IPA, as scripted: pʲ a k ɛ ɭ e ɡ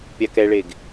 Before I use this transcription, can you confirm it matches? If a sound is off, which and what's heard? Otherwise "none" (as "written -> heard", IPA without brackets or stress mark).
none